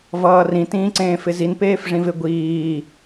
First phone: v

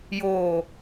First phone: j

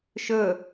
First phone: ʃ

